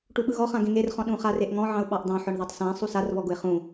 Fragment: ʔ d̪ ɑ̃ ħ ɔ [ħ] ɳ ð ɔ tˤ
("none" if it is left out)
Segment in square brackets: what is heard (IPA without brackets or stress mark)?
none